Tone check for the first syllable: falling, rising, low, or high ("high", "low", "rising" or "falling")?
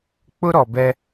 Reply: high